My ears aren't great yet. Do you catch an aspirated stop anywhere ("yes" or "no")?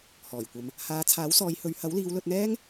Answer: yes